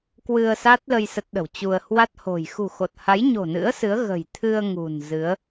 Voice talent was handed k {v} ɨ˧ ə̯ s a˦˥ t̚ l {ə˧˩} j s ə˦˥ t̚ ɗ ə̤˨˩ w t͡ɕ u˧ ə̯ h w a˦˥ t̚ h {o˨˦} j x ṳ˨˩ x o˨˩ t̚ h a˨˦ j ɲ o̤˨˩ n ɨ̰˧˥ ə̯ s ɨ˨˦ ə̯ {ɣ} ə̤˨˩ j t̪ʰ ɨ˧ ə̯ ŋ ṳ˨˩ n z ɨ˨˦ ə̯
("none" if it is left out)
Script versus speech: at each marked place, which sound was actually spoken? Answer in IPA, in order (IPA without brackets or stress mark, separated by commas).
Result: w, ə˧, o̤˨˩, ɣ